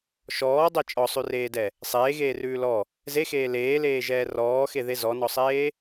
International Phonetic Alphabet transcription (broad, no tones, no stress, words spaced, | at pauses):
ʃɔːdˤɛ t͡ʃʼɔsˤʉreːdɛ | sˤeːɣeːrʉː lɔ | zexeː leːleːʒɛː rɔːxeðe zɔnɔsˤeː